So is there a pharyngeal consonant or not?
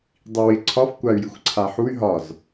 yes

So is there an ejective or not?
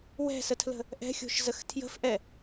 no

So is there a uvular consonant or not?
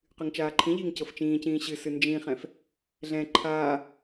yes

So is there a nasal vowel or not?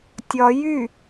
no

